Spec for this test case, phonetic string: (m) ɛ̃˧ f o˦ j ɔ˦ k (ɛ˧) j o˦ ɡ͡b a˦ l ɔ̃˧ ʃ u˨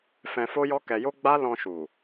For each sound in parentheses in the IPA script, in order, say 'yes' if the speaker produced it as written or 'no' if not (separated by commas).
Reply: no, yes